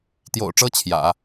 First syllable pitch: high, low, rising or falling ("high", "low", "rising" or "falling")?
low